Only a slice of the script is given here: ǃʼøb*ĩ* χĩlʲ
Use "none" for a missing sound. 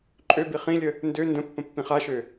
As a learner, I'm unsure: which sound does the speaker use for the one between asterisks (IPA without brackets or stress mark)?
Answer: i